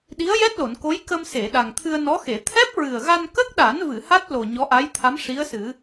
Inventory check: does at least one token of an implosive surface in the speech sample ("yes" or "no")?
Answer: yes